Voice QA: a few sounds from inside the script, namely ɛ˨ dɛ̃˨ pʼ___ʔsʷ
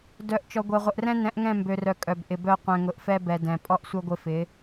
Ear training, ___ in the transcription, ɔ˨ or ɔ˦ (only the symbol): ɔ˦